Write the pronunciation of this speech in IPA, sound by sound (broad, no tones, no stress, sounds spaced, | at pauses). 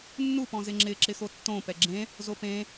nː u p ɔ̃ z ɪ ŋ͡ǁ ɪ ǁ ɪ x o tː õ p ɛ ɡ͡ǁ ẽ | z o p ẽ